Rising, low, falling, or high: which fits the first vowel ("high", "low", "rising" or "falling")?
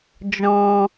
low